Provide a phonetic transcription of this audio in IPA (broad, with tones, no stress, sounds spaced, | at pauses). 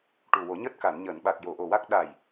ʈ u˨˩ w o˨˩˦ ɲ əː˦˥ t̚ k a˨˩˨ n ɲ əː˨˩˨ n ɓ a˨˩ k̚ j o˨˩˨ ʔ o˨˩ w a˦˥ k̚ ɗ a˨˩ j